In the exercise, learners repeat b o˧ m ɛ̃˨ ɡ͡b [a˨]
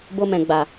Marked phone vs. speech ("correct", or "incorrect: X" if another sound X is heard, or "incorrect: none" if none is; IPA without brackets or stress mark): correct